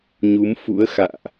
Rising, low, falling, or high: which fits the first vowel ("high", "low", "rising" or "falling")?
rising